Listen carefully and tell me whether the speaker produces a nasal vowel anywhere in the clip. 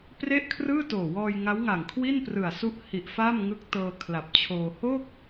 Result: no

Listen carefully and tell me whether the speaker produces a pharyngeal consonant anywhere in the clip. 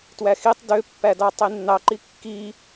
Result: no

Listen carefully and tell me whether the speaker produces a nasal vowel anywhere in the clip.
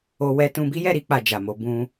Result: yes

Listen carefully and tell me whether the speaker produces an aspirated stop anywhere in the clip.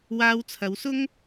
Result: yes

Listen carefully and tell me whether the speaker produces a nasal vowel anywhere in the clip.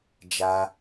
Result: no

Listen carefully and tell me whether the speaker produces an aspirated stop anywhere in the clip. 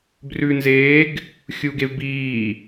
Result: no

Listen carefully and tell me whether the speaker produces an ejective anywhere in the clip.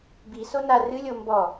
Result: no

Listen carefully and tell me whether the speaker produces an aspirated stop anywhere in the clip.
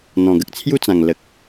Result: yes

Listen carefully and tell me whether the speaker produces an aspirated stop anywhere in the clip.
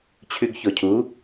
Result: yes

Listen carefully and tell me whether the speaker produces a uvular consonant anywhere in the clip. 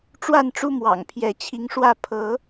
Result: no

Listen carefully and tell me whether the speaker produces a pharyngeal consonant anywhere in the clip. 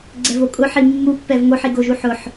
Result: yes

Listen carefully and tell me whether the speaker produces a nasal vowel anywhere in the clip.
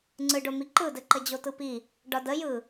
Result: no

